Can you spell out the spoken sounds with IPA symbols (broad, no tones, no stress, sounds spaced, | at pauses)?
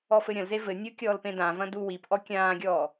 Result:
ɔ f ɘ ɾʲ ɐ̃ l z e v ɘ nʲ u kʲ ɔː l p ẽ d ã v ɐ̃ d u w i p ʔ ɔ kʲ ãː ɡʲ ɔː